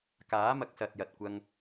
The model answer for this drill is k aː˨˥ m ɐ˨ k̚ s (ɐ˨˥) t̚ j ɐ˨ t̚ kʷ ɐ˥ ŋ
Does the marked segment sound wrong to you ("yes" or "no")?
yes